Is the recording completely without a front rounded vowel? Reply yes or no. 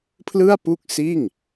yes